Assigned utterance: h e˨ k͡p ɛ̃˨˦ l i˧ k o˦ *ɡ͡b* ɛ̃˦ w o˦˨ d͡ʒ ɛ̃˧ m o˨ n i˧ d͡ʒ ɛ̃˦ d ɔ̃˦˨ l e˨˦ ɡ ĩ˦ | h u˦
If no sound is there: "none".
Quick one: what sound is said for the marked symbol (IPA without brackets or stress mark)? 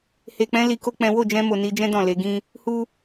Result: k͡p